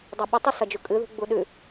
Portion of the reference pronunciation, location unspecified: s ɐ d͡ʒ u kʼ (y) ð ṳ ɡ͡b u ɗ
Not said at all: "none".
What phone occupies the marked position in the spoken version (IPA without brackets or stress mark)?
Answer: ɨ